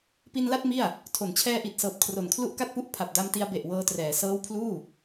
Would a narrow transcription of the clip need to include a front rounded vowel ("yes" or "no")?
no